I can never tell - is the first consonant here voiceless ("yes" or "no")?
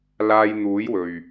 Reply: no